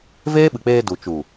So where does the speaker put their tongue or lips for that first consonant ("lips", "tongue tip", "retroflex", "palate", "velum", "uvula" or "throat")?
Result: lips